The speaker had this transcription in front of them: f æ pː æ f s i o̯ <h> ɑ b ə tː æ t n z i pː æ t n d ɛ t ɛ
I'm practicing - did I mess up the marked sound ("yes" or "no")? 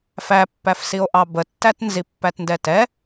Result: yes